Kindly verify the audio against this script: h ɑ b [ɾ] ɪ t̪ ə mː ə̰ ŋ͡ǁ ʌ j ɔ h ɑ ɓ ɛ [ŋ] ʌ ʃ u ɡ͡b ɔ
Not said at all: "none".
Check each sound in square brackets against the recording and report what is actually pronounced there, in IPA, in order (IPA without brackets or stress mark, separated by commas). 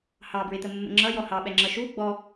ɹ, ŋ͡ǁ